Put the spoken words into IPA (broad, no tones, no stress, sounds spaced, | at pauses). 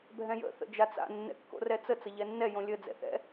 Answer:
bʱ ɛ̃ j ə̰ θ ə̰ d͡ʒ a t͡s a̰ nː ɛ̰ kː o̰ r ɛ t͡s ə t͡s ə ʎ ɛ nː ɛ j õ lʲ ə d͡z ɛ̰ θ ɛ̰